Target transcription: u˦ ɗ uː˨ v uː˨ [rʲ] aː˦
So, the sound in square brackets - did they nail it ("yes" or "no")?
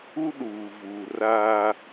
no